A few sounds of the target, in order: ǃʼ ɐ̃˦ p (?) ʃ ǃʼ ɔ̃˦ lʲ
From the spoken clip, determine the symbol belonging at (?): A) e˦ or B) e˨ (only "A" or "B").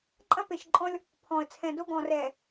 B